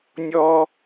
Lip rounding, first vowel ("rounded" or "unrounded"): rounded